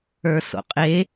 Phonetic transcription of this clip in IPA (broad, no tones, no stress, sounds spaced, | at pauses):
ə˞ s o̰ qʼ e